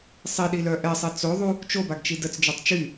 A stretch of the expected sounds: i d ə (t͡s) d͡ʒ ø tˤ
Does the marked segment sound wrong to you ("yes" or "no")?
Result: no